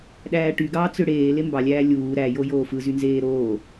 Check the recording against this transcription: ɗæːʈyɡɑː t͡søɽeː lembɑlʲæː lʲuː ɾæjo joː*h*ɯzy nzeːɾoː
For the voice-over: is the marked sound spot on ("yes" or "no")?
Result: no